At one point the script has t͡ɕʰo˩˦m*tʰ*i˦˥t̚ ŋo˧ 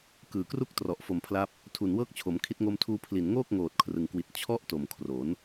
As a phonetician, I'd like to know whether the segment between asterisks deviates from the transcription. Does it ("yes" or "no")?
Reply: yes